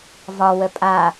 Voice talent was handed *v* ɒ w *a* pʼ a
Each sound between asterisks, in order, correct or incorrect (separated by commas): correct, incorrect